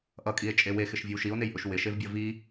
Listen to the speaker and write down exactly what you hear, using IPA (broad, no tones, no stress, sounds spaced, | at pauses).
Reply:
ʔ ʌ kʼ i e̯ t͡ʃʼ e w e x ɪ ʃ vʲ ɨ w ʃ i o̯ n e j ʔ ʊ ʃ w ɪ ʃ e v bʲ ʌ v i